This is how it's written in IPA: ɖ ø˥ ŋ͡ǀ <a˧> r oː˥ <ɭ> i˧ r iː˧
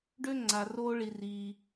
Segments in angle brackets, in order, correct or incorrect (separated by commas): correct, correct